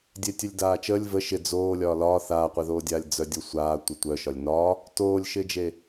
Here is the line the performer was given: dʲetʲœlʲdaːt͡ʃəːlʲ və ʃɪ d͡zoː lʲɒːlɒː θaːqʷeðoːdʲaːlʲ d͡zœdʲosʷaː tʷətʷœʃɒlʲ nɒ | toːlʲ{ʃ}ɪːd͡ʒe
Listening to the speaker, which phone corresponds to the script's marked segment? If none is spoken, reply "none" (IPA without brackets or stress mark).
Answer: ʃ